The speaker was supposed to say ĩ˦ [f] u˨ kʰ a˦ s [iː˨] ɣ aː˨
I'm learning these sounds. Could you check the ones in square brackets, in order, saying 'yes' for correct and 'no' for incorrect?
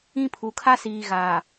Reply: no, yes

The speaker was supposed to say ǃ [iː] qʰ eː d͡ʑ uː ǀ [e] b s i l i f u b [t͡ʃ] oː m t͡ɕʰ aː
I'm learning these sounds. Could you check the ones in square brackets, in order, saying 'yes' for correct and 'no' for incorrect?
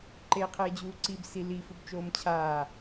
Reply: no, no, yes

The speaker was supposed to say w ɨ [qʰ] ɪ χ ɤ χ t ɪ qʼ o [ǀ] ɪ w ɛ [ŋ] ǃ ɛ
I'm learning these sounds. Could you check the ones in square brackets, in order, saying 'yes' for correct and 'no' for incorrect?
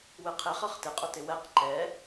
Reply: yes, no, no

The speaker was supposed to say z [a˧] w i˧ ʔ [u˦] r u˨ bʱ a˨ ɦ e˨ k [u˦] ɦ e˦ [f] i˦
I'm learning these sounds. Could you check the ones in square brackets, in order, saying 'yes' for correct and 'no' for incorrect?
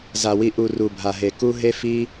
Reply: no, no, yes, yes

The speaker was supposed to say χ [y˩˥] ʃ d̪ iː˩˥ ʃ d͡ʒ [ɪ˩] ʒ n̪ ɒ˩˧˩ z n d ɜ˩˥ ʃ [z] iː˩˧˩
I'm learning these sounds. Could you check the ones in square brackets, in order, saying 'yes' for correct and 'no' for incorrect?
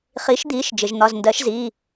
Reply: no, yes, yes

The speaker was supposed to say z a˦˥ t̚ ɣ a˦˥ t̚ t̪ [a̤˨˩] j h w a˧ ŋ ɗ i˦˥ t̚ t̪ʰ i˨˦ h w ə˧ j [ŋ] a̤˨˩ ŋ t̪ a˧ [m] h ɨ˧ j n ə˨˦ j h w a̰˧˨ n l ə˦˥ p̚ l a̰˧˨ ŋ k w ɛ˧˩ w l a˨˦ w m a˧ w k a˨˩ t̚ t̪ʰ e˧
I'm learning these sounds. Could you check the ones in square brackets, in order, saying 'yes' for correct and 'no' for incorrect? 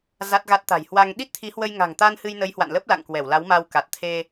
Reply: yes, yes, no

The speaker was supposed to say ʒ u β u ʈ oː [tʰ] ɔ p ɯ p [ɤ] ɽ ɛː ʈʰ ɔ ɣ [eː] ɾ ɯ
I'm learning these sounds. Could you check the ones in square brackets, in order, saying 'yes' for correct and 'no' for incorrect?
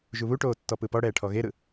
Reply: no, no, no

